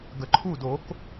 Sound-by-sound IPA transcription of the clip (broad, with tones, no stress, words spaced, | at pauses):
ɡə˨ǃʰu˦˨do˨˦k